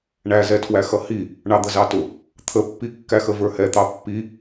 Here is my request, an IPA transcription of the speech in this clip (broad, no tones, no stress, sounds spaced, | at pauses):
ɳ æ z ɛ tʰ w æ x ʌ h i | ɳ ɑ d̪ ə z ɑ t ʊ | t̪ʰ ə pː i kː æ x ə v ə˞ h ɛ t̪ ɑ pː i